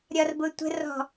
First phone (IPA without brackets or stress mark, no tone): ɾʲ